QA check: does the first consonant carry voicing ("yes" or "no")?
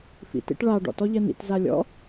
no